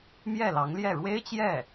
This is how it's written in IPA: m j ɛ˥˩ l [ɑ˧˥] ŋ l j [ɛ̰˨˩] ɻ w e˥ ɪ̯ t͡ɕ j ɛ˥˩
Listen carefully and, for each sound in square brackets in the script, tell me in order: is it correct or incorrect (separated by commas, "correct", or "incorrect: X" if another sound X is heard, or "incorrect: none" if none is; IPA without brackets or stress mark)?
correct, incorrect: ɛ˥˩